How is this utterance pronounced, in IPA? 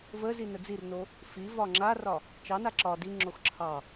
v ə z i n ə d͡z i r n o | f i v ɒ ŋ͡ǁ a r ɒ | t͡ʃ ɑ n a ǁ ɒ d i ŋ͡ǁ o x ǁʰ ɑ

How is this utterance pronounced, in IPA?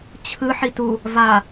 t͡ɕʰ ɯ ħ i t u | v a

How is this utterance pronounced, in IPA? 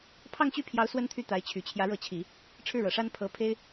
pʰ ɑ˥˧ ŋ t͡ɕ y˥˩ pʰ j ɑ˧˥ ʊ̯ s w ə˥ n t̪ʰ y˥˩ t̪ a˧˥ ɪ̯ t͡ɕʰ y˨˩ t͡ɕʰ j ä˧˥ ɻ ɤ˧˥ t͡ɕʰ i˨˩˦ | ʈ͡ʂʰ ɻ̩˥˩ ɻ ɤ˨˩ ʂ a˥ n pʰ ɤ˧˥ pʰ e˥ ɪ̯

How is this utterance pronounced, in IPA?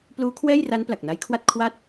p l uː˦˥ kʰ w ɛː˥˩ j r a˦˥ n p l a˨˩ k̚ n a˦˥ j kʰ w a˥˩ t̚ kʰ w a˦˥ t̚

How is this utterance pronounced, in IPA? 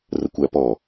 r ə kʷ æ p ɔ

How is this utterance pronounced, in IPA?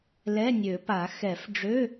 l ɛ˧˥˧ nʲ ø˨˩˦ p a˨˩˦ x ɛ˨˩˦ f ɖ͡ʐ ø˧˥˧

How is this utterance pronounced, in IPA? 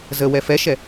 z ə w ɛ f ɛ ʃ ɛ

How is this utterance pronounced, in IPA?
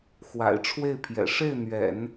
x w a̰˨˩ ɪ̯ ʈ͡ʂʰ w e˥˩ ɪ̯ pʰ j ɛ̰˨˩ ʂ e˥˩ ɪ̯ n̪ ɥ ɛ̰˨˩˦ n

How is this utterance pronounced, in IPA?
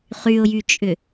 χ y ʊ̯ j y t͡ʃʼ ʏ

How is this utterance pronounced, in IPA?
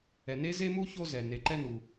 ɛ˨ n e˥ z e˥ m u˥ ç o˦ z ɛ˩ n e˨ ǃ ɛ˦ n u˨

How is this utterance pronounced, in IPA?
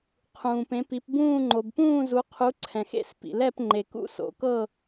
qʰ ũː˨ p ẽ˨˥ p i˨˥ p b ũː˥˧ ŋ͡ǃ o˨ b p ũː˥˧ z u˨˥ qʰ u˨˥ ǀʰ ɛ̃˨ x ḛ˥˧ s p ḭ˨ l ɛ˥˧ p ŋ͡ǃ e˨ k ṵ˥˧ s o̰˨˥ k ɤ˥˧

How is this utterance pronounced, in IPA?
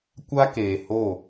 kʷ a˦ k eː˨ h o˦˨

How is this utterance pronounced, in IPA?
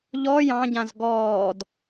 ʎ ɔ j ɑ̃ ɟ ã z ɡ ɔː d

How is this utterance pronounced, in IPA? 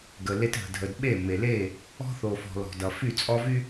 ɡ ə˨ l e˦ t ɦ ə̤˨ dʱ ə˨ d ɓ e˦˨ m e˨ l e˦˨ | ɔ̤˦ θ o˨ f ɔ̤˨ l ɔ̤˨ d ʌ˨ f y˦˨ t͡sʼ ɔ˦ v y˦

